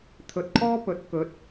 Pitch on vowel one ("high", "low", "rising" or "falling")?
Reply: low